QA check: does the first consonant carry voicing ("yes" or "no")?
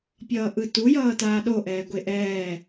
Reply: no